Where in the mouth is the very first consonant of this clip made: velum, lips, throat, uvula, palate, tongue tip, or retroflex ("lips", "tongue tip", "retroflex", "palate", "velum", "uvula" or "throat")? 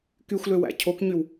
velum